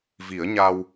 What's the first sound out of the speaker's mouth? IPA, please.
v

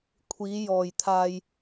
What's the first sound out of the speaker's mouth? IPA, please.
kʷʰ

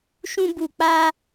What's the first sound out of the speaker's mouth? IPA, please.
ʃ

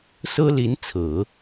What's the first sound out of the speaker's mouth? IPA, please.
s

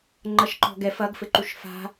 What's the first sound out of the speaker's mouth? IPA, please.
ŋ͡ǃ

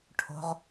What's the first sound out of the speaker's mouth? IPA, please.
ʈʰ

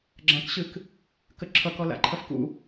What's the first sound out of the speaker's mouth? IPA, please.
ɡ͡ǁ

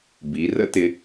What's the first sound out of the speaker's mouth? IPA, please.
b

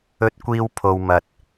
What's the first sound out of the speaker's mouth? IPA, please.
ɵ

